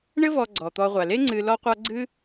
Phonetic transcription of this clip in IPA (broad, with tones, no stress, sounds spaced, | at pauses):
ɳ ɘ˦ v ɔ˨ ɡ͡ǀ ɔ˩ t̪ ɔ˨ ʁʷ a˩ l e˥ ŋ͡ǀ ɨ˨ l ɔ˦ qʷ a˦ ɡ͡ǀ ɨ˥